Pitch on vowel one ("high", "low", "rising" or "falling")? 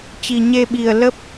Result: low